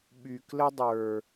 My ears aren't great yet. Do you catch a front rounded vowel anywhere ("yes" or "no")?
yes